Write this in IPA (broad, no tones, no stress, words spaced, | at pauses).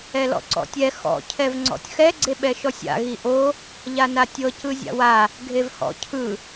ɛlɔ̰ǀɔ̰tʲɛ xɔ̰ cʰɛvŋ͡ǀɔ̰tʲxɛ ɡ͡ǀeɓɛʃɔsʲa̰ ɣiʔo | ʎanatʲɤ cɯzʲa̰wa | ɡʱevhɔ̰ cʰɯ